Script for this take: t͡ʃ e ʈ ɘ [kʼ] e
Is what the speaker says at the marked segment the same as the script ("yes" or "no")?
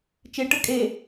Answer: yes